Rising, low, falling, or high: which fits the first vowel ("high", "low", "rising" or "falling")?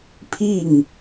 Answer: falling